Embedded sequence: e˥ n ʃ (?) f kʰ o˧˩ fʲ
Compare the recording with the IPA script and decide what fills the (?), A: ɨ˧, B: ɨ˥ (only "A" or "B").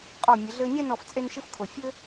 B